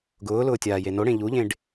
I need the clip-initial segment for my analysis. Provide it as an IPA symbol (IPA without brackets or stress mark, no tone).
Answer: ɡ